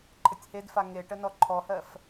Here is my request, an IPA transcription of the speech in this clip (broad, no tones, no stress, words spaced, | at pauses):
ǃʰətʲhedfa ŋeʈə nɔǃʰɔhɜf